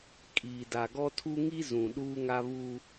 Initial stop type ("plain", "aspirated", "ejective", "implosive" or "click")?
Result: ejective